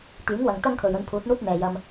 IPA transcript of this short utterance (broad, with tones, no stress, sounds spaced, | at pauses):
t̪ yː˨˥ ŋ w ɐ˨ ŋ t̪ ɐ˥ ŋ kʰ ɵ˨ ɥ ɵ˧ n pʰ uː˨˥ t̚ n̪ uː˥ t̚ n̪ ɛː˨ j ɐ˧ m